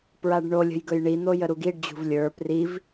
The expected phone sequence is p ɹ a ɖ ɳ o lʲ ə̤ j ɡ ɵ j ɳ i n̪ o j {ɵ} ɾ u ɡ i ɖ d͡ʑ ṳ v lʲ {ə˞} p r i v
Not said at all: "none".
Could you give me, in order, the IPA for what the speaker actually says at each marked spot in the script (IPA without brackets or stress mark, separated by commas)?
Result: ə, ə˞